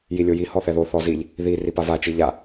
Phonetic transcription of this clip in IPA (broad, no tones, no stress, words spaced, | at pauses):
jilʲoji hɔθɛðo θɔziʎ | ði ripava t͡ʃiʎa